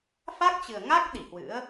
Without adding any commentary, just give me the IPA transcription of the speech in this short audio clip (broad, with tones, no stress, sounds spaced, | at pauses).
f a˦˥ k̚ t͡ɕ ɨ˨˩ ə̯ ŋ a˦˥ k̚ ɗ i˧˩ h w ɨ̰˧˥ ə̯